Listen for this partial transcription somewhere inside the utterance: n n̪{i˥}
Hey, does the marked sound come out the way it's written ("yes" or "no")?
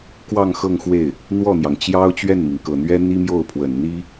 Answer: yes